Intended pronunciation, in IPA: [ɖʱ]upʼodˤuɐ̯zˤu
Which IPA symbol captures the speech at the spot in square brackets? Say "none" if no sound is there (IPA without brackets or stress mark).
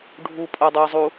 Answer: ɖʱ